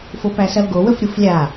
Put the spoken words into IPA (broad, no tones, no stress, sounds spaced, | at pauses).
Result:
f o p æ s ɐ l ɡ o w ə f ɾʲ u f lʲ a